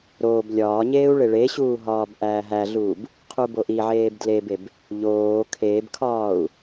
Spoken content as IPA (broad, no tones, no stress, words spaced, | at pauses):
ɾoːb lʲɒːɲeːu̯ ɭeɭeɕuː ɦɒːbʔæːɦæɮuːb | qʰuboʔiʕeːb dlebeb | ʎoː kʰebkʰɒːu̯